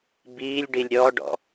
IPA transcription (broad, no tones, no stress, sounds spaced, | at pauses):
b iː lʲ ɖ i lʲ ɾʲ ɔ ɖ ɔ̰